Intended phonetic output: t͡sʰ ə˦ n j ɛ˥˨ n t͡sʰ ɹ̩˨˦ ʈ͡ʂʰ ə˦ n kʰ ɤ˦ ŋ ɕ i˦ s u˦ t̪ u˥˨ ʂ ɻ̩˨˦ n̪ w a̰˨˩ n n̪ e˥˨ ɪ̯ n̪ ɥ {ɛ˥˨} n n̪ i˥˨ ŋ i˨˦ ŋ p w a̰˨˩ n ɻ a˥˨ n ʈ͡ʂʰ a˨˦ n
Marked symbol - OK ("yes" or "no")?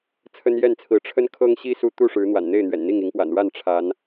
no